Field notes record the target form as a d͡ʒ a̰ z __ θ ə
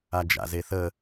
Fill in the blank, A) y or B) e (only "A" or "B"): B